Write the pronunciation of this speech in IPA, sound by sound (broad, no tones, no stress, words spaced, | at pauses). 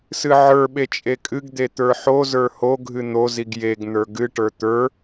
sɨʕə˞ɓe t͡ʃʼekʼɨɡd̪e t̪ə˞ħozə˞ hoɡʱɨ n̪oziɡ jeɡ n̪ə˞ɡɨʈə˞ t̪ə˞